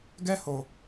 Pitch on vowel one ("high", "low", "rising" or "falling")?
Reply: high